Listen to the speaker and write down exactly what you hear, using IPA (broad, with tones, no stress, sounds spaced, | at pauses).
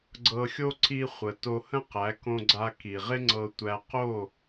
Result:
ɡ͡ǀ ɤ˧ xʲ o˥ ǀ i˧ χʷ ə˩ t o˧ h ə̃˥ q æ˩˥ k õ˧ ɡ͡ǀ a˧ k i˩ ʁ ɪ˥ ŋ͡ǀ ɤ˧ tʷ æ˧ q o˥˩